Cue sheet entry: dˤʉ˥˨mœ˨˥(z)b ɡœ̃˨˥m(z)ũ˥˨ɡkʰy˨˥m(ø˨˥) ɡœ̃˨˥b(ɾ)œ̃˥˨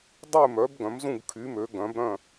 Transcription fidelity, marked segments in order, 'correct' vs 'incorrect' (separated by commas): incorrect, correct, correct, correct